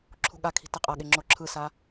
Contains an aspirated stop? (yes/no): yes